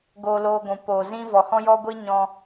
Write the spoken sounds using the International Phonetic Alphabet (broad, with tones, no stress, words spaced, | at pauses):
ɡoː˧loː˧ɡʷũ˨ poː˨zĩ˦ vɔ˨hɔ̃˦jɔ˦ɡʷi˦ ɲɔ̃˧